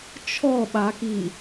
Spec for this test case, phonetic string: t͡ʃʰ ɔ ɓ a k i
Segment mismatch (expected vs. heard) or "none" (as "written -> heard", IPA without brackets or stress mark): none